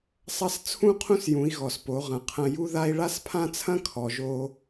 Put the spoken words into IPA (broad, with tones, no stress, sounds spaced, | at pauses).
sˤ ɐ˧˥ s t͡sʰ ũ˥ qʰ ũ˥ s j ũ˩˧ i̯ ɣ ɔ˩ s p o˩˧ ʁ ɐ̃˩ qʰ ɐ̃˧ j u˥ ð a˥ i̯ ɭ a˥ s pʰ ã˥ t͡sʰ ɐ̃˥ kʰ ɔ˩ ʒ o˧